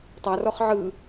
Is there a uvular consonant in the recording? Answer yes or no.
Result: yes